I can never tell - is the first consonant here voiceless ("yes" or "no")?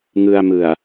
no